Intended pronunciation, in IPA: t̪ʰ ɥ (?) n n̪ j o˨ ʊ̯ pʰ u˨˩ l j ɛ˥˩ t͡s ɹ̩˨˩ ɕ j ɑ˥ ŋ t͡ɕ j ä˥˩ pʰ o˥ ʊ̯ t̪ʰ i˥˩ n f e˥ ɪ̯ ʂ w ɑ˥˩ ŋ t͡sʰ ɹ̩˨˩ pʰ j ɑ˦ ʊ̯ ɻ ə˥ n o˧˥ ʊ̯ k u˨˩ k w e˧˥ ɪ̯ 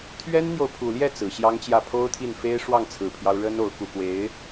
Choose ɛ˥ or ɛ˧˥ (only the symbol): ɛ˥